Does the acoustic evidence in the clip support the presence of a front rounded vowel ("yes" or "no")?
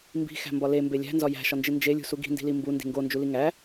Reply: no